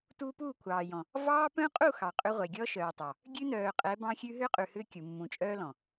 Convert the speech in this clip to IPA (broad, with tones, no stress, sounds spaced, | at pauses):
t uː˦ p uː˦˨ kʷʰ ɑː˨ j ɔ̃˨ | v ɑː˦ p œ̃˦ qʼ u˦˨ x ɑ˨ qʼ ʏ˦ ʁʷ ɛ˨ ɡʲ ɔ˦ ʃ œː˨ tˤ ɑ˨ | ɡʲ ʉ˦ n œː˨ qʼ ɛ˨˦ b ɑ̃˦ xʲ ʉ˦ ɦ ʏː˦ qʼ ʉ˨ h ʏː˦ kʲ u˨ mː ũ˨ t͡ʃʼ œː˦ l ɔ̃˨